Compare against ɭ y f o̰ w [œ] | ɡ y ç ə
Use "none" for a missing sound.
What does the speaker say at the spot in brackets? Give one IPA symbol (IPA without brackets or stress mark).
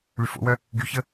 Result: œ